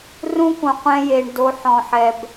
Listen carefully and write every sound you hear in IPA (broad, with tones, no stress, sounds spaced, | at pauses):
r ũ˥ k ũ˨ qʷ ɛ̃˦ j e˨ ɳ d o˨ ħ ɔ̃˩ ħ ɛ˩ b